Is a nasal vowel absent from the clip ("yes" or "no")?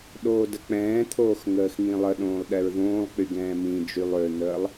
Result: no